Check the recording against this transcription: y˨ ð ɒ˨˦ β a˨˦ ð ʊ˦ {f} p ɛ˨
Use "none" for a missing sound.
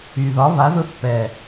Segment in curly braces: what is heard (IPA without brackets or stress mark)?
θ